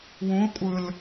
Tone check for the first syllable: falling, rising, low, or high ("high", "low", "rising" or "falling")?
rising